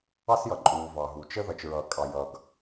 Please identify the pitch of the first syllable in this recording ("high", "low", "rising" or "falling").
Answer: high